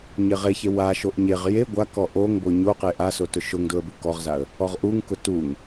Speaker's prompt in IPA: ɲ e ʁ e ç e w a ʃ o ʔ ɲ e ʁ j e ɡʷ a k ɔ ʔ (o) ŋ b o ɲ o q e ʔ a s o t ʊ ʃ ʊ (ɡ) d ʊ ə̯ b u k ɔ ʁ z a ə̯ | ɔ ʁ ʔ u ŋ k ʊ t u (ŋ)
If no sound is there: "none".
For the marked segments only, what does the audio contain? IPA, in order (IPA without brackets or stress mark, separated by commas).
o, ŋ, ŋ